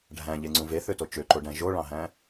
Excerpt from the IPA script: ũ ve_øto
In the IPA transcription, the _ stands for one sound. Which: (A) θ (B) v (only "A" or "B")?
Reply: A